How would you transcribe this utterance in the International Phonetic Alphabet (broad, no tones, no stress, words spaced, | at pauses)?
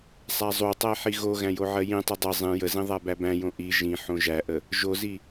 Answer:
sˤæzˤutˤæ ħiɣoɣæ̃ joʕɜjĩtˤi dˤə zˤĩ jəzĩ ðˤæbæbæ̃jõ ʔi ʒĩ ħõʒæʔə | ʒozi